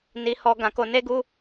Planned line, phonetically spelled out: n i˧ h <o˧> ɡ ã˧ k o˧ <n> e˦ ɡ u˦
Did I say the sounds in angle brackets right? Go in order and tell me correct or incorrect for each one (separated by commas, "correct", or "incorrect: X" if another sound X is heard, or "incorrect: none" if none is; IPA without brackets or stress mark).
incorrect: ɔ˧, correct